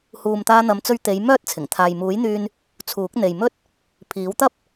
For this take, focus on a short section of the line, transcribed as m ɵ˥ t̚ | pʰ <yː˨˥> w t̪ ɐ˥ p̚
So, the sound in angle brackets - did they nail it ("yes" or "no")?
no